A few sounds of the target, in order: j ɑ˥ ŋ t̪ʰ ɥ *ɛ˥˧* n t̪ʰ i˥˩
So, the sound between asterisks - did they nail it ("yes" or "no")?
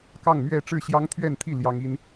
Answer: yes